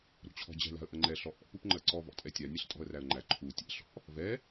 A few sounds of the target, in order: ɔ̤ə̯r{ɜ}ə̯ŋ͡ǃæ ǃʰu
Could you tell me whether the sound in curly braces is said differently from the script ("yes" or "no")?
yes